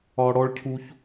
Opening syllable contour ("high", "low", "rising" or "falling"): high